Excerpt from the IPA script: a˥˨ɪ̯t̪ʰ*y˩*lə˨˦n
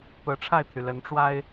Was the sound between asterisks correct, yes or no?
yes